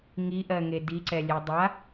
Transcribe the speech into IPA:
ŋ i ʔ ɜ ŋ e d i ǀ ɛ lʲ ɛ dˤ a

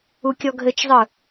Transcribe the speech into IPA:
u kʲ ɔ ɡʱ ɘ t͡ʃ zˤ ɯ

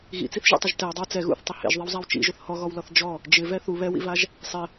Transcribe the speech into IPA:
ɣ ḭ t͡s i θ ʒ ḛ tˤ ʊ ʒ t ɛ w dˤ ɪ w t͡s ɛ ɣ ṵ θ tˤ ɪ h ḛ ʒ ðˤ i w zˤ a w t͡ʃ ḭ ʒ ʊ θ h ɔ ɣ ɔ w l ɔ θ d͡ʒ ɔ | d͡ʒ ɪ v ɛ θ u β ɛ w ḭ v a ʒ | sˤ ɪ

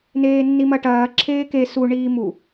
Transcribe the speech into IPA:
n eː nː i m ɐ ʈ ɐː ǁʰ eː k e s u ɳ iː m u

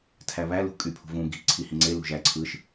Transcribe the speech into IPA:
tʰ æ β æ l ṳ kʼ y pʰ ṳ v ũ ɡ i̤ ǀʰ i h ĩ ŋ͡ǀ e l ṳ ʒ æ ǀʰ ɯ ʃ

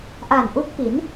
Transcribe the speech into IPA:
ʔ a˨˩ n ʔ u˦˥ k̚ p i˩˦ n

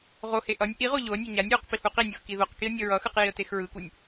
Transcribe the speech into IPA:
ʁ o h e ʔ ʌ nʲ ʔ i ʁ o ʎ o ə̯ nʲ ʌ ɲ a nʲ w u q p i h u q i nʲ u x k i ð o q k i ə̯ nʲ ʌ ɹ ʌ x ɯ q j i ə̯ t e x ɹ ɯ k u nʲ

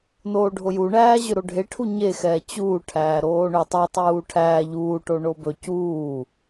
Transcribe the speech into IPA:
n oː ɖʱ o j u ɳ æː ʑ ɵ ɾ o ɖʱ e ʈʰ u ɲ e x ɛː t͡ɕ uː ʈʰ æː ɾ oː ɳ ɵ tˤ ɜ tˤ uː ʈʰ æː ʎ uː ʈ o ɳ o b ɵ c uː

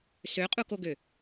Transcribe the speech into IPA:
s ø qʼ u k o ɡ ø

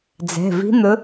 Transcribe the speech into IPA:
d͡z ɛ̤˩˧˩ v i̤˧˥ n̪ ɵ˧˥

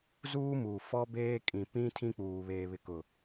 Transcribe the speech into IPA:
z uː˦ m uː˨ f ɔ˦ b eː˦ kʼ ĩ˨ p ĩ˦ tʰ ĩ˦ k͡p uː˨ β eː˨ β ɪ˨ k ʊ˨

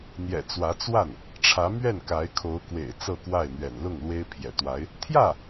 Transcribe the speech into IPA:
n̪ j ɛ̰˨˩ t͡s w ä˧˥ t͡s w a˥˩ n | ʈ͡ʂʰ ä˧˥ m ɥ ɛ˥˩ n k a˧˥ ɪ̯ kʰ o˧˥ ʊ̯ k w ḛ˨˩ ɪ̯ t͡s ɤ˥˧ k w a˥˩ ɪ̯ n̪ ɥ ɛ̰˨˩ n l ʊ˥˩ ŋ l w e˥ ɪ̯ pʰ j ɛ̰˨˩ t̪ w a˧˥ ɪ̯ | t̪ʰ j ä˥˩

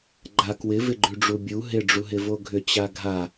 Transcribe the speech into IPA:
ɡ͡ǃ a k w ɪ v ɪ ɡ͡ǃ ʉ ɖ͡ʐ u bʲ u ɦ ɪ ɖ͡ʐ u ɦ ɪ v o ɡʱ ʏ t͡ɕ a ɡʱ a

